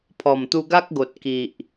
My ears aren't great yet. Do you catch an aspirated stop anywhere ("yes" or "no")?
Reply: yes